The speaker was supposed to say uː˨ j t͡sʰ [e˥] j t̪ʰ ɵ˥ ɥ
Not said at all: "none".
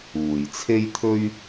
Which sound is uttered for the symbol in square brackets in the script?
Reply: e˥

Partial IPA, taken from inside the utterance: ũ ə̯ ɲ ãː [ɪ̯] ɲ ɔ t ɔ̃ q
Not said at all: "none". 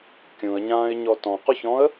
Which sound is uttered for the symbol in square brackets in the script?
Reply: ɪ̯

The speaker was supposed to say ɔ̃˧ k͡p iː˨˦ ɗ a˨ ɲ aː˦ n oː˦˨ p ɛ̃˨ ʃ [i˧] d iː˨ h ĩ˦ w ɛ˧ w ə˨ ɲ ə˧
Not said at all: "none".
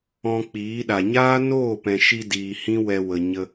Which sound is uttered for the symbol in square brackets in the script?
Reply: i˧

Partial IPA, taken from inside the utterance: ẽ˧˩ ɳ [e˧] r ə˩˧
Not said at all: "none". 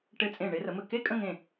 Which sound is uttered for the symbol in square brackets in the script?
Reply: e˧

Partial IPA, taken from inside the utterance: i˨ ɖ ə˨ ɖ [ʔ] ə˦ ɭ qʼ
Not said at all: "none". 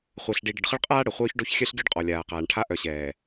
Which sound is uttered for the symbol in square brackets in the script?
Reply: χ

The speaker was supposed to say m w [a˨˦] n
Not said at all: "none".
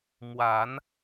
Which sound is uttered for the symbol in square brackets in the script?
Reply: a˨˦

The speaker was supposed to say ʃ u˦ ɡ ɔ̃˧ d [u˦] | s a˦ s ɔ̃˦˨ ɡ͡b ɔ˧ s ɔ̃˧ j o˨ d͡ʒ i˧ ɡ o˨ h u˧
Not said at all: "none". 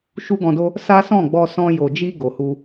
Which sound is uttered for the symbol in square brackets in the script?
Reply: o˦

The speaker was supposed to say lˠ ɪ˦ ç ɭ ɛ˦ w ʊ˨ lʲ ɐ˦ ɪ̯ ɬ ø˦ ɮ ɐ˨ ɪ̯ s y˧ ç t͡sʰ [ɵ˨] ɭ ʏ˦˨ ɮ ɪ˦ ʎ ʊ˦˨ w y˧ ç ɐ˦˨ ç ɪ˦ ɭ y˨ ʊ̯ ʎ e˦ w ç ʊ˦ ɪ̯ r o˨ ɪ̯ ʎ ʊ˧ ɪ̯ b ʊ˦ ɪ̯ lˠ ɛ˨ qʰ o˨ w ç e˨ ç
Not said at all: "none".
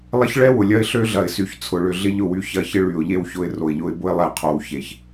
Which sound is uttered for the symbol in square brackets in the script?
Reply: ʊ˨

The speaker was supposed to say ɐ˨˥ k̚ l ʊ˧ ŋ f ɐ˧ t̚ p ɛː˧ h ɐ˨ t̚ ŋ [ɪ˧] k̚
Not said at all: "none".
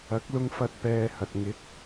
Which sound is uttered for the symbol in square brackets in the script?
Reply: ɪ˨˥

